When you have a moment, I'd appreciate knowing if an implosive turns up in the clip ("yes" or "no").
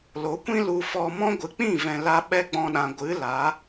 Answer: yes